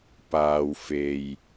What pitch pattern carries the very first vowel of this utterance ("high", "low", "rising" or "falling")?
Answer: low